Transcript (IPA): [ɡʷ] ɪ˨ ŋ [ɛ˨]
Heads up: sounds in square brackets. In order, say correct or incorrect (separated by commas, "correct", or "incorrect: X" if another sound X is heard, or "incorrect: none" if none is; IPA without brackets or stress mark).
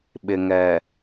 incorrect: ɓ, correct